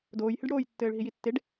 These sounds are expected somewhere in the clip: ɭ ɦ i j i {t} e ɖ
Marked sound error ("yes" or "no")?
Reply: yes